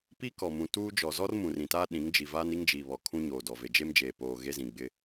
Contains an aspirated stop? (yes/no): yes